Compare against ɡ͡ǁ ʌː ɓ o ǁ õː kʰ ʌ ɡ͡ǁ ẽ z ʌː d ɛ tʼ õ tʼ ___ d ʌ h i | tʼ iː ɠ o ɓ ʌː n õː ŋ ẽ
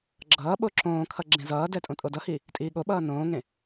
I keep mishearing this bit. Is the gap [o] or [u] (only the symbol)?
o